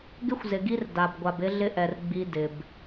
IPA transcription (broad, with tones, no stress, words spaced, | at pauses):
ɡɪ˦xʷzɪ˨ɡi˦r da˨bɡʷa˨bɪ˦ ɮɪ˦ʔɛ˨r ɡ͡bi˦ dɪ˨b